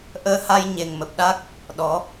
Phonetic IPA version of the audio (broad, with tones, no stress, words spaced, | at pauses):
ʔəː˧ha˧j ɲe˨˩ŋmə˨˩p̚ɗa˦˥k̚ | ɗɔ˨˦